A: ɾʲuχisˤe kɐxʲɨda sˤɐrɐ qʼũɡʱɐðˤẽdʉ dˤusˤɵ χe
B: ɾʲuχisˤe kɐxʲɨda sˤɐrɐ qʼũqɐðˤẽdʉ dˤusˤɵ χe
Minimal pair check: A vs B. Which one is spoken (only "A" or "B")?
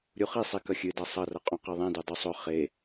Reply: B